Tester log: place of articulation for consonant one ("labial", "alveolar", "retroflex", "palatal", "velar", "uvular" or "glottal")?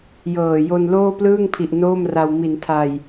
palatal